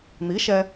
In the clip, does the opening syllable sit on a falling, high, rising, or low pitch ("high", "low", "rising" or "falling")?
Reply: rising